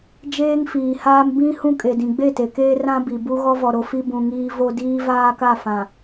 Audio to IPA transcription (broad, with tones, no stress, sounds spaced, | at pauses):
d͡ʒ eː˦ ŋ f iː˨ h aː˦ m b ĩ˦ h ũ˦ kʼ e˨ d ĩ˨ ɡ͡b e˦˨ t e˨ k eː˦ r ã˦ b i˨ b u˦ ɣ ɔ˦ v ɔ˨ ɾ o˦ f i˦ b ũ˨ ŋ iː˦ v o˦ d iː˦ v aː˦ k a˦˨ f ã˨